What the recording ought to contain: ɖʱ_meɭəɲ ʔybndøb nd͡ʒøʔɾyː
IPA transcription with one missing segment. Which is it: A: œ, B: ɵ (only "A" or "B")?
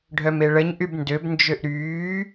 A